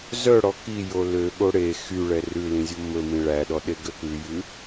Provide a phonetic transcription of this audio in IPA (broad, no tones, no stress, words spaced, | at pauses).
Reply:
zœ ɽɔki jolø ɠoɽe xyɭɛ rʉlĩzʲo mɵmĩ ɭæɗɔɗe ɡøkʉjʉ